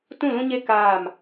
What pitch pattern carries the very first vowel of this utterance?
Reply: falling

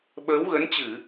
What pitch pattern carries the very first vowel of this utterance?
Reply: rising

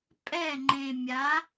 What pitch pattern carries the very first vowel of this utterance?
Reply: falling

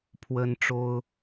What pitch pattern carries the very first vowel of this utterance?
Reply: high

